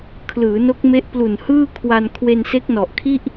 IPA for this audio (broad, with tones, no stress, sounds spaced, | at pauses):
kʰ l ɯː˩˦ n o˦˥ k̚ m e˦˥ ʔ p l u˨˩ n h ɯː˥˩ kʰ w a˧ n kʰ w e˧ n s e˦˥ k̚ n ɔ˨˩ ʔ kʰ i˥˩ ʔ